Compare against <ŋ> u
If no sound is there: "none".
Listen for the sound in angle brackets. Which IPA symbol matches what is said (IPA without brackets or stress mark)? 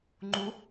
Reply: ŋ͡ǃ